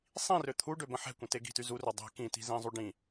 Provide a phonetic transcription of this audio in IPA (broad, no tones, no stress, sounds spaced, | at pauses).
sˤ ĩ r ø t̪ʰ u ɖ ø b ə̃ ħ ɛ̤ kʷ ə̃ t e ɡ i̤ t y z u r ø dˤ ɛ̤ k ĩ t i̤ z ĩ zˤ u ɖ ĩ